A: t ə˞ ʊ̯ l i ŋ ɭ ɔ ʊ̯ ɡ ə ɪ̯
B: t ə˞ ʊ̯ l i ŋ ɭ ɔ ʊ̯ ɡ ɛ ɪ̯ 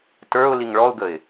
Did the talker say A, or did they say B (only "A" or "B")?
A